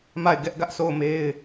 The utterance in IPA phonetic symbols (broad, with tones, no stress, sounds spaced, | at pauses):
m a˦˨ ɪ̯ ɡ ɛ˦ ʔ ɡ ä˦ ʔ sʰ o˦˨ ʊ̯ m e˦ ɪ̯